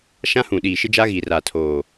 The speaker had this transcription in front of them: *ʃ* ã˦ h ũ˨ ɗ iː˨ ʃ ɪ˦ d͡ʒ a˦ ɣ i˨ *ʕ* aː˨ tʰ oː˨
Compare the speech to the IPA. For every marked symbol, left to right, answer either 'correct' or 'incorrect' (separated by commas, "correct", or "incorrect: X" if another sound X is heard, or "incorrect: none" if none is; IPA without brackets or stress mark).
correct, incorrect: r